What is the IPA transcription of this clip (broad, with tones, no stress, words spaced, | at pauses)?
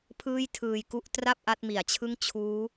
pʰɯː˥˩jtʰɯː˧jku˥˩ʔ tra˥˩p̚ ʔa˦˥t̚mi˩˦a̯t͡ɕʰɯ˥˩ŋ t͡ɕʰuː˦˥